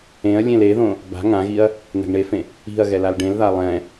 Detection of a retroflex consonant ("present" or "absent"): present